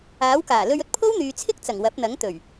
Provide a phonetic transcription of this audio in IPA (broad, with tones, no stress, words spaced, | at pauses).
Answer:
aː˨˥wkaː˨˩lɵ˧ɥɵ˥t̚ pʰo˥wn̪yː˨t͡sʰɪ˥k̚t͡sɐ˨˩ŋ wɐ˨˥p̚n̪ɐ˨˥ŋt̪ɵ˨˩ɥ